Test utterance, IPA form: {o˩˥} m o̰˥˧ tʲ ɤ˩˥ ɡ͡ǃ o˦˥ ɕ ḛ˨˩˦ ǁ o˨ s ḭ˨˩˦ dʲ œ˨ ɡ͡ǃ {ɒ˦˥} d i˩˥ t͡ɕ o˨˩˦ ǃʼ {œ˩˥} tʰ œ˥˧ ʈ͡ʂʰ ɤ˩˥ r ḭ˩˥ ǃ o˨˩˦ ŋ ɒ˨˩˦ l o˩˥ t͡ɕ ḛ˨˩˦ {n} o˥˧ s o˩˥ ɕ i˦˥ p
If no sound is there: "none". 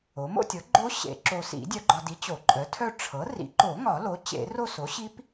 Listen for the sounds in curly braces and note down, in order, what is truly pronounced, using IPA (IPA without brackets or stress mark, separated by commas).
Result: o˩˥, ɒ˨, œ˩˥, r